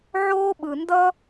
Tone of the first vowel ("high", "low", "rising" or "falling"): high